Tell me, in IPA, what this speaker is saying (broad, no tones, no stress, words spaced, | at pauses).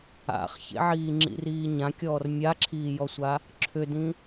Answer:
a̰χçḛʕiː ŋ͡ǁḭriːɲãkʲɔːr mʲaǁʰiːjɔsʷa | ǁʰʏdĩ